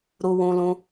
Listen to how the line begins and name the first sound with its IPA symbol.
ɾ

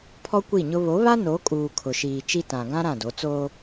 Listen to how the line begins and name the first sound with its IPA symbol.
pʰ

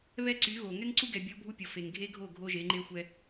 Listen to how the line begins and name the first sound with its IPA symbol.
β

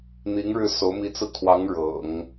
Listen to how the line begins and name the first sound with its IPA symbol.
n̪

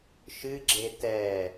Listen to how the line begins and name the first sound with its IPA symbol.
ʃ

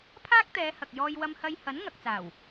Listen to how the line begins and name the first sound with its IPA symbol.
pʰ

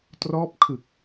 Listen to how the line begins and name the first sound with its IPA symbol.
t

